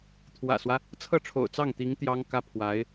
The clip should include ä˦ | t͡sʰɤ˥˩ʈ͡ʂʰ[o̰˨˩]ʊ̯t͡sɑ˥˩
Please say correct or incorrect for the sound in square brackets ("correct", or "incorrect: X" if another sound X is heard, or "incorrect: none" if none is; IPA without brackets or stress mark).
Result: correct